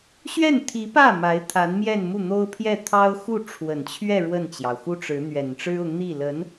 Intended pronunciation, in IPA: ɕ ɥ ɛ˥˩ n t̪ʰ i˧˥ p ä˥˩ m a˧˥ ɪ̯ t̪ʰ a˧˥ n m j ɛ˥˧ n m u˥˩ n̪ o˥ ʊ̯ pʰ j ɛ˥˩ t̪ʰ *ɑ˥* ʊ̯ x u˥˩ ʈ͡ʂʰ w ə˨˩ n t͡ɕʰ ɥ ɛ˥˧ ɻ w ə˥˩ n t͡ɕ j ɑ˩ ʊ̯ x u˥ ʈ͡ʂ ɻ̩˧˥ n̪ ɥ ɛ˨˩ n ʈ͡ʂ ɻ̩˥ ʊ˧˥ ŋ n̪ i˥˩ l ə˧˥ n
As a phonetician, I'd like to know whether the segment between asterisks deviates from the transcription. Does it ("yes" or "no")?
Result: no